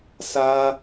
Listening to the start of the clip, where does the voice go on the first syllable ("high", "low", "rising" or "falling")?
high